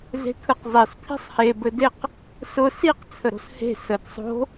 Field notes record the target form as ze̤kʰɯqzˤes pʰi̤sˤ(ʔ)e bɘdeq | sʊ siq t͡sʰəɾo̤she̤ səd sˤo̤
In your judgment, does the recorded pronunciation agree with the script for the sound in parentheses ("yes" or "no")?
no